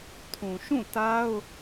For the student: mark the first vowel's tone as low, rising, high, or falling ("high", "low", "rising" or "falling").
low